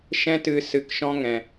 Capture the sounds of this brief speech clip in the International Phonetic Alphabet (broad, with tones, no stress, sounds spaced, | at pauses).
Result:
ʃ ɛ̃˦ t ɨ˧ s ɨ˧ k ʃ ɔ̃˦ ŋ ɛ̃˨